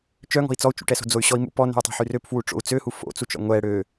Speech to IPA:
t͡ʃ œ ŋ ɔ̤ i̯ t͡s ɔ u̯ t͡ʃ ṵ ʈ ɛ s o̤ d͡z o y̯ ɕ ɔ i̯ m ṵ p ɔ n ɛ̤ i̯ tˤ ɛ̤ ħ y r ø p f w u ʈ͡ʂ o̰ u̯ t͡s ø h u f o̰ t͡s u t͡ʃ ɔ̰ ŋʷ ɛ ɽ ø

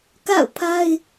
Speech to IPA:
k a̰˦˨ ʊ̯ pʰ a˦ ɪ̯

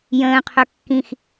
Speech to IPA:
j ə̃ː qʰ ɵ kː ĩ x

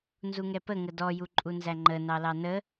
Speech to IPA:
n z u ŋ ɛ p ə ŋ ə d ɔ j u ǃʼ u n z æ ŋ͡ǃ ə n ɑ l ɑ n ə

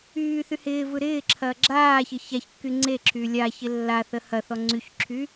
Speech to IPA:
yː θ y h ɪː v ɯ ɾ ɪː ǁʰ ɐː ɡ͡ǁ aː ç ɪ ç a ç kː y ŋ͡ǀ e ǁʰ yː lʲ a ç ɪ lː a θ ə h ɐ θ ɔ ŋ͡ǀ y ç ǁʰ y

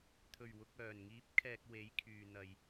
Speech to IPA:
t̪ʰ ɵ˨˩ ɥ w ʊ˨ k̚ œː˨˩ n ŋ iː˨˥ p̚ kʰ ɛː˨ k̚ w e˨˥ j kʰ yː˨ n̪ ɐ˨ j

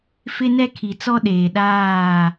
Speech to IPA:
f ɪ˦ n ɛ˦ kʰ i˨ t͡s ɔ˦ ɗ eː˨ ɗ aː˦˨

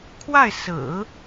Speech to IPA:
kʰ w a˥˩ ɪ̯ s ɹ̩˨˩˦

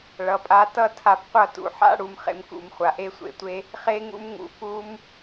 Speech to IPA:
ɭ ʌ˨ pʼ a˧ t ʌ˦ tʰ a˧ p qʷ ʌ˦˨ t ṵ˨ ħ a̰˦ ɽ u˧ m χ ḛ˧ m k ṵ˨ m χʷ a˨ ʔ e˦ sʷ ḛ˨ tʷ e˦ | χ e˦ ŋ ṵ˦ m ŋ ṵ˨ p u˦ m

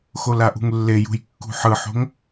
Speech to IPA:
x o l a ʔ ṳ ŋ lː e j ṳ j kː ṳ ħ ɯ ħ o̤ ŋ

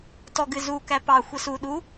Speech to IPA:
t ɔ ɡ ɨ z u k æ p ɑ xʷ ɛ s u ɗ u

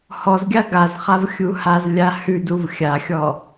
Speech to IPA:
h ɔ z ɡʲ a ɡ a z χ a v xʲ u h a z lʲ a h ʉ d u v xʲ a xʲ ɔ

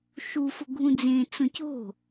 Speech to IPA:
ʃ u f ʊ ɡʱ ũ d͡z ẽ t͡s õ c o̤

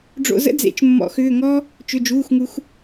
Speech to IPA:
ɖ͡ʐ o̰˧ z ə̰˥ d͡z ḛ˨˩˦ t͡ʃ mː ɔ̰˨˩˦ x ʏː˩˧˩ ŋ ɔː˥ | t͡ʃ ʏ˩˧˩ d͡ʒ uː˩˧˩ x ŋ u˨˩˦ x

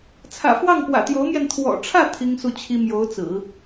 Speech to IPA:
t͡sʰ ä̰˨˩ f w ɑ˥˩ ŋ p w ä̰˨˩ t̪ j o˧˥ ʊ̯ m j ɛ˧ n t̪ʰ w ɔ̰˨˩ ʈ͡ʂʰ ä˥˩ t̪ʰ i˥ ŋ s u˥˩ t͡ɕʰ i˥ m j o˧˥ ʊ̯ t͡s ɹ̩˨˩˦

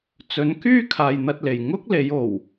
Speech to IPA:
t͡s ɵ˨˥ n k yː˥ kʰ aː˨ j n̪ ɐ˧ t̚ l e˨˩ j ŋ ʊ˥ k̚ l e˨˥ j o˨˩ w

